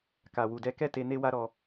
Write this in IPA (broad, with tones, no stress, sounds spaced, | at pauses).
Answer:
k a˨ w u˨ d ɛ˧ k ɛ˦ t e˧ n e˦ w a˦ ɾ ɔ˧